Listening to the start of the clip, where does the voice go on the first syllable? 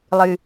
low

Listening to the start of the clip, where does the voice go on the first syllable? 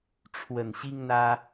low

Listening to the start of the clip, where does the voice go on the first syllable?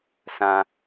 low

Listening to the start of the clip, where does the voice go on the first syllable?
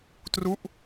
falling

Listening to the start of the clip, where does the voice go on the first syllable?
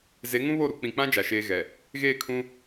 rising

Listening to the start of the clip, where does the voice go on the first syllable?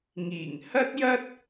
low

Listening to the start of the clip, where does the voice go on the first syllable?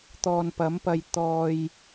low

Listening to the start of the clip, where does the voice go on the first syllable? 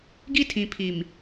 high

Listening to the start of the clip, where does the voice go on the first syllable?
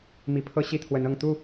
rising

